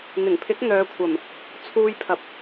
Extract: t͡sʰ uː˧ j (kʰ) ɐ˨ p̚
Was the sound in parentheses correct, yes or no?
no